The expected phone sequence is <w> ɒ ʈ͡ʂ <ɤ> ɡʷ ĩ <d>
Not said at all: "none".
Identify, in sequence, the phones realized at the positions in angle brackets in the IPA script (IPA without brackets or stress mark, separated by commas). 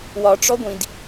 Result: w, ɔ, d